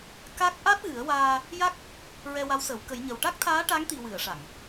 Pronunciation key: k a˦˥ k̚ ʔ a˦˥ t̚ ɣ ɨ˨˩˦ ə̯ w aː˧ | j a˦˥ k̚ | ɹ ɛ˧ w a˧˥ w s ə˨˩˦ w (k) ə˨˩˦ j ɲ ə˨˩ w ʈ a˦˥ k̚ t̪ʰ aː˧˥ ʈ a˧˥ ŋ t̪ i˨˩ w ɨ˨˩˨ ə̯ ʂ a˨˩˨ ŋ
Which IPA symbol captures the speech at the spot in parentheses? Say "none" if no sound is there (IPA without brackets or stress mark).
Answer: k